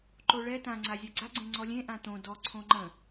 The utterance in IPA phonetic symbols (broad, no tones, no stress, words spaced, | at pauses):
ǃoɭɛ tã ŋ͡ǀazʲaɡ͡ǀa ɡ͡ǀẽŋ͡ǀɔlʲẽ ʔãt̪õ dɔ ǀʰõŋ͡ǃə̃